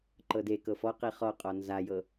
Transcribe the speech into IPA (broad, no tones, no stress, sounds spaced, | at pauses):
ǃ ɤ d e k ɤ f ɔ q i χ ɔ qʼ ɔ n z a j ɤ